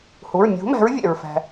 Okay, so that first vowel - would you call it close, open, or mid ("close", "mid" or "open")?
close